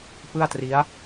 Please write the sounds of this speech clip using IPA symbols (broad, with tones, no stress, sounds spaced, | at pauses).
p ɯ˥˩ a̯ t r i˦˥ a̯